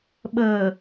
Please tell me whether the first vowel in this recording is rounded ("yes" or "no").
no